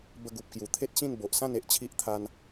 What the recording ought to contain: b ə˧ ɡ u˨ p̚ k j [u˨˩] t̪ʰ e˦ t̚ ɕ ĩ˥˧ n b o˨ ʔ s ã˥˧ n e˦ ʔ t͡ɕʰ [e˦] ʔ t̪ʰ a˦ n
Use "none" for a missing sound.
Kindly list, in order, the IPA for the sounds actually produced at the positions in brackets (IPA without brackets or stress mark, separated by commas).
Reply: u˨˩, i˦